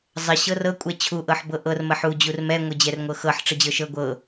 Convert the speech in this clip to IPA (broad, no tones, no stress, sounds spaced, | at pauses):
zˤ ə ɕ ɤ r ɤ kʷʼ ɛ t͡ɕʰ u ʔ ɤ ħ b ɤ ʔ ɤ r m ə ħ u d͡ʑ u r m ɛ ŋʷ ə d͡ʑ ɛ r ŋʷ ɤ x ɤ ħ ʈ͡ʂ ə d͡ʑ ɤ ʃ ɤ ɡʷ ɤ